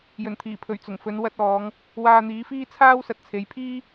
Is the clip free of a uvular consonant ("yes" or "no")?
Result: yes